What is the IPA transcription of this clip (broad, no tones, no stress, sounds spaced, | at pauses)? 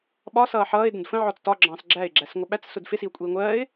ɓ ɒ s ʌː ħ ʌː ɪ̯ d ə̃ d f ə̃ ʕ ɔ t͡s t ɒ ɡ͡ǁ ɑ̃ː s ɡ͡ǁ æ ɪ̯ ɡ͡ǁ æ s ŋʷ ə ɓ æ t͡s s ʊ d f ɪ s i ʊ̯ kʷʼ iː ŋʷ ɜː ɪ̯